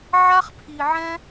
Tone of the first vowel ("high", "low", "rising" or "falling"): high